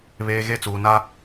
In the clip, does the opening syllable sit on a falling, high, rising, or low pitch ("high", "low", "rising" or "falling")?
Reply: high